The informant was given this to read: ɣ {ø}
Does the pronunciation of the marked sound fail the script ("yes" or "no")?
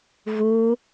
yes